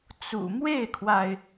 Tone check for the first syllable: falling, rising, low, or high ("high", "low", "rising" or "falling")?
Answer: low